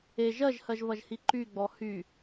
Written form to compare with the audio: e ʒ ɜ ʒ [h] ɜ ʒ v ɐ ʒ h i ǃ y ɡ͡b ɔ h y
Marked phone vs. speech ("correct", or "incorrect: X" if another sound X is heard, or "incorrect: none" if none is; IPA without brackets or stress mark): correct